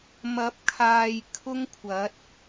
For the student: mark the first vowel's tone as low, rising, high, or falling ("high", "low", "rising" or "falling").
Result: rising